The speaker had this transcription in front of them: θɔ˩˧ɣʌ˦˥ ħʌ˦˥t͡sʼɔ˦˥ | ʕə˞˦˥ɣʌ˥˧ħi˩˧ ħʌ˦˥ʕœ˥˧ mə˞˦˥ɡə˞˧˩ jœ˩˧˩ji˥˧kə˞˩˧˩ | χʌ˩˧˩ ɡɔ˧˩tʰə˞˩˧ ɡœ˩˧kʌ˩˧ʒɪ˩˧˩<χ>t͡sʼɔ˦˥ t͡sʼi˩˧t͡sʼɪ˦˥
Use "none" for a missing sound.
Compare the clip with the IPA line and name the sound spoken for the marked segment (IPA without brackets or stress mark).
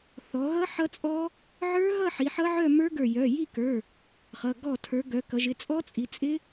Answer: none